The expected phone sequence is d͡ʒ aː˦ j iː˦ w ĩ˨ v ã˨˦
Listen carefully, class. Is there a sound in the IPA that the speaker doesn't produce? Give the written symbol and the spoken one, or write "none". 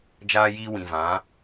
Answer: none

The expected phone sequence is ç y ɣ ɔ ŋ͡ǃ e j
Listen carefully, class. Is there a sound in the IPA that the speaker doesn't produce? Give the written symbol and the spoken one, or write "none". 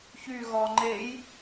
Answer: none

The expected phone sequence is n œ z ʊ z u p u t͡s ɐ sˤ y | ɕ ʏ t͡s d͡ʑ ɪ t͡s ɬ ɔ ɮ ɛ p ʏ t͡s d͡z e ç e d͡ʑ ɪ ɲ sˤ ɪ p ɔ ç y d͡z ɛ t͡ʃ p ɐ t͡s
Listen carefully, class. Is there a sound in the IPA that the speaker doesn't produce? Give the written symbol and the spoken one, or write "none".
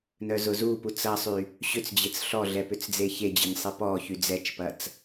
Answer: none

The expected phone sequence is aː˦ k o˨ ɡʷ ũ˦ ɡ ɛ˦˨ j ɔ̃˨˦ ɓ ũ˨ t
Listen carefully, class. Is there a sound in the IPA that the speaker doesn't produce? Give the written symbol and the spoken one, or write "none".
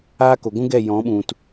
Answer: none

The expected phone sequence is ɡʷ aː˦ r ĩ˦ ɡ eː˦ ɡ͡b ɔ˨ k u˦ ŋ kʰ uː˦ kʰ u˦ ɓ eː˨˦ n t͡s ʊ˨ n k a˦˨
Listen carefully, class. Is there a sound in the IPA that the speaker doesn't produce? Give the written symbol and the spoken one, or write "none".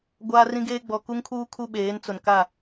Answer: none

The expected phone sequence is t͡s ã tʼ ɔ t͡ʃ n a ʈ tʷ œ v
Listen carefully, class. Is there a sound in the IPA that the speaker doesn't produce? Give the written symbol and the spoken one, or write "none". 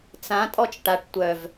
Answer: n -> ʈ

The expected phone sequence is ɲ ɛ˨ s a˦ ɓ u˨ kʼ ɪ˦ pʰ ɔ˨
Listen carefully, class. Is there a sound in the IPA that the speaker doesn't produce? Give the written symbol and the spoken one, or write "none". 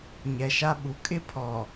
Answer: s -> ʃ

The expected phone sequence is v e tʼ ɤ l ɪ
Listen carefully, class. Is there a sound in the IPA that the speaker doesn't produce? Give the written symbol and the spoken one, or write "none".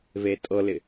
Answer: none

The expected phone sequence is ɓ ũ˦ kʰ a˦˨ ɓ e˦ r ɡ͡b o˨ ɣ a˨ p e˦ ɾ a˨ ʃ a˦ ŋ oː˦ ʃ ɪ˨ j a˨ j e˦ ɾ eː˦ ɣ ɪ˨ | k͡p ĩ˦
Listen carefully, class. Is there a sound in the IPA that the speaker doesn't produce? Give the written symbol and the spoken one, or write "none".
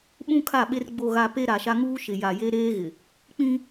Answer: oː˦ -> uː˦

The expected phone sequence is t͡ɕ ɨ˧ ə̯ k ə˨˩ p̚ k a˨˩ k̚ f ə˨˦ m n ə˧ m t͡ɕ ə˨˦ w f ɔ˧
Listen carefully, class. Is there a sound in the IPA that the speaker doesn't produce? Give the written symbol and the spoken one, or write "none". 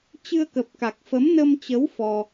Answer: none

